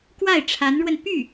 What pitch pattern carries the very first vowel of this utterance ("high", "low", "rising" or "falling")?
falling